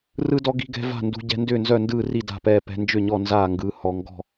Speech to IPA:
r ɯ˦ d ɔ˦ ɡ i̤˦ ɡ ɛ̤˦ v a̤˥˨ n d ṳ˦ ɟ ɛ̤˦ n d ʏː˥˨ n z œ˥˨ n d ɯː˥˨ r i˥˨ d a̤˥˨ p ɛː˥˨ p ɛ̤˦ n d͡ʒ ʏ˥˨ ɲ ɔ˥˨ n z aː˥˨ ŋ ɡ ɯː˦ h ɔ˦ ŋ ɡ ɔ̤˥˨

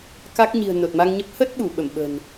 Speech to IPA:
k a˦˥ k̚ ɲ i̤˨˩ ə̯ n o˨˩ t̚ m a˧ ŋ ɲ ə˦˥ p̚ h ə˦˥ t̚ ɓ u˧˩ ɓ ə˧˩ m ɓ ə̤˨˩ n

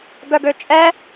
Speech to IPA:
ɡ œ ɡ ø t͡ʃʼ ɛ

